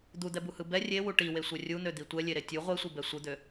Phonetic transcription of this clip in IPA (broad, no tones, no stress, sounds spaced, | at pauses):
d̪ u d̪ ɛ b u h ɯ b ɛ rʲ e w u ʈ i w e sʷ ɛ rʲ u n̪ ø d̪ i tʷ ɛ lʲ e ɾ e tʲ u ʁʷ e sʷ ɯ b ɛ sʷ ɯ d̪ ø